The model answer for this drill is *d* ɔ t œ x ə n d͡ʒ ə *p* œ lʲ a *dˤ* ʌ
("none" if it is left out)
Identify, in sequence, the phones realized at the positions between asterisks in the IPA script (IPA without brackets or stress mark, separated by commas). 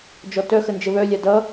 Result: d͡ʒ, β, d